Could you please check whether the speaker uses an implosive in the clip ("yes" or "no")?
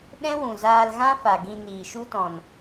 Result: yes